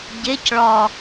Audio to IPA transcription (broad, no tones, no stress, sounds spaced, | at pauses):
ɟ e c ɭ ɒ